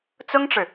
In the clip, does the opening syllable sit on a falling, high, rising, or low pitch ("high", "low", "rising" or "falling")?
high